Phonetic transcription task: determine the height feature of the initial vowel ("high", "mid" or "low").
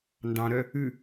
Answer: low